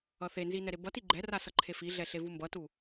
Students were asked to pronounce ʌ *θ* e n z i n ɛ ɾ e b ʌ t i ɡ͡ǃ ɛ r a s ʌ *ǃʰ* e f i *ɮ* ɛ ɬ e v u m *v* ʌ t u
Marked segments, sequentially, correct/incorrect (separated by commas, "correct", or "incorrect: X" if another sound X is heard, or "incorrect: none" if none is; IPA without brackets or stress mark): correct, correct, correct, incorrect: b